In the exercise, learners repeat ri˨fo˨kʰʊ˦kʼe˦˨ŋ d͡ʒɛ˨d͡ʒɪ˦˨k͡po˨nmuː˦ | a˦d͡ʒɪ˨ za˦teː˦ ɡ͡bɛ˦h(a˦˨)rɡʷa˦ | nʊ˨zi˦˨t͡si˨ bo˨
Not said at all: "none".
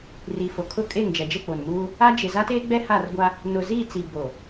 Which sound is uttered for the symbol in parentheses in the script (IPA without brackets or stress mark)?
a˦˨